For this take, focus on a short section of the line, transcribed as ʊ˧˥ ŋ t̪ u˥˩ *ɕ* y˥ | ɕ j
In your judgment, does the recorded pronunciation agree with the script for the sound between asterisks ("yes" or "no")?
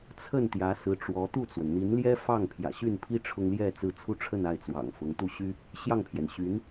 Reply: yes